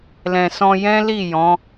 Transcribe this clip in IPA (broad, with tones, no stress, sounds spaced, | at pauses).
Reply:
l ɛ̃˨ s ɔ̃˧ j ɛ̃˦ l i˦˨ j ɔ̃˨˦